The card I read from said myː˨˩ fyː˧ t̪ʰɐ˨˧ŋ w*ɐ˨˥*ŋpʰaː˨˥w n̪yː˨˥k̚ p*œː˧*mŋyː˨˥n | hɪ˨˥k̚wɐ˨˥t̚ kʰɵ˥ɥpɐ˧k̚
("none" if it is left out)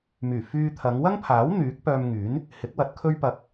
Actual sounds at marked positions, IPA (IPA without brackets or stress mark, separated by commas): ɐ˥, œː˧